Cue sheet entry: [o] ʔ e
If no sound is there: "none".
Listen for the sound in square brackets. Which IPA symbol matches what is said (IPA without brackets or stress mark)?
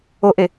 o